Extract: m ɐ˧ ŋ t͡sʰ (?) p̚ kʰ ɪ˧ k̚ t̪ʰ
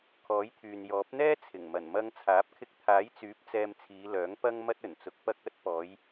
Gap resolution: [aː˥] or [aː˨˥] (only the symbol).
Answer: aː˨˥